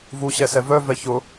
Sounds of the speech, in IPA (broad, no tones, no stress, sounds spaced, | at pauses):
v u ɕ ɛ s ɛ v œ v ɛ ç ʊ